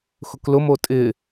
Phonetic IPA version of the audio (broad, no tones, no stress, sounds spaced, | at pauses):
x ʊ k l ʊ m o tʼ ɪ